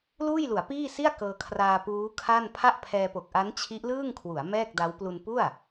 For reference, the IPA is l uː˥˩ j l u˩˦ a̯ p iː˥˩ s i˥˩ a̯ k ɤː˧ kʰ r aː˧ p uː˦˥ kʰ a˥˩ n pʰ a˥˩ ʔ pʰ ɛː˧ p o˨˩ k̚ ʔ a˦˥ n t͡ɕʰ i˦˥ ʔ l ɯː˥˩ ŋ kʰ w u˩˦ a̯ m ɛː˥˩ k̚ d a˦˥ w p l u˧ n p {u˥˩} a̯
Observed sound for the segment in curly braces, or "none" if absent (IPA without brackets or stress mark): u˥˩